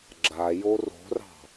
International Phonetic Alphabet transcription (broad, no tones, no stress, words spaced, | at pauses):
ɡ͡ǁajo ro̤rɑ̤